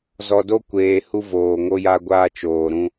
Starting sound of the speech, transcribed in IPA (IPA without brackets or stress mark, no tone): z